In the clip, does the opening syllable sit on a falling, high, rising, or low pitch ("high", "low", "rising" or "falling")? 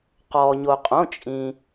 low